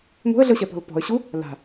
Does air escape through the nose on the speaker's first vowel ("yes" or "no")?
no